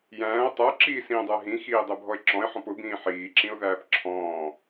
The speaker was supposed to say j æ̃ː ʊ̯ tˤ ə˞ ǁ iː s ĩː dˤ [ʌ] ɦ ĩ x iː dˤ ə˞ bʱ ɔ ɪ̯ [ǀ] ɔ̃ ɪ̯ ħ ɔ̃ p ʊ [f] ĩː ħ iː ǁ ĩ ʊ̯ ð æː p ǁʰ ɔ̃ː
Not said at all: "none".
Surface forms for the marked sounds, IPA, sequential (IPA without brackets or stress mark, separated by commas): ə˞, ǁ, b